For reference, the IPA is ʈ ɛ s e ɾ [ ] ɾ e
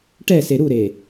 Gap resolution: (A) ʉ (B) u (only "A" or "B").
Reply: B